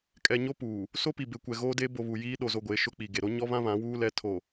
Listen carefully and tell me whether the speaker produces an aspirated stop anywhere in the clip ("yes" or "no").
yes